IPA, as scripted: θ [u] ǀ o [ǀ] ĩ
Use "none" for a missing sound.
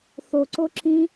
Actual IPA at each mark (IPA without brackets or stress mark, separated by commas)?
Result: o, ǁ